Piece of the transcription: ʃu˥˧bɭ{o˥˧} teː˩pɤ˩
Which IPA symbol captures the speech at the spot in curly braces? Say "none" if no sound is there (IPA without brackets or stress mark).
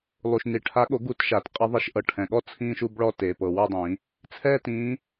ɔ˥˧